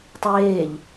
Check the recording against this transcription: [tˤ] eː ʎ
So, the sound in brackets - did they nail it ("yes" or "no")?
yes